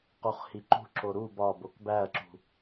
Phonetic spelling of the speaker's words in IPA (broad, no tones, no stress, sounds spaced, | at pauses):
q u χ h i ǃ ṳ ǁ o ɾ u b ɒ b o k b æ ɐ̯ ǁ ṳ